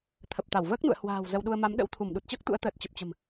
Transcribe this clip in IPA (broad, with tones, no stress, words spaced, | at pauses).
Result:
t̪ʰə˨˩p̚t̪a˧˩wvəː˦˥k̚nṵ˧˨ə̯ hwa̤ː˨˩w zə˧wɗu˧ə̯ ma˨˦mɗə̰˧˥w t̪ʰu˧˩mɗu˨˩t̚t͡ɕəː˦˥k̚ t̪ṵ˧˥ə̯t̪əː˨˩t̚t͡ɕə˨˩p̚t͡ɕə̤˨˩m